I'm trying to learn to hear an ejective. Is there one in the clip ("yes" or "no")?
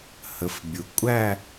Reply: yes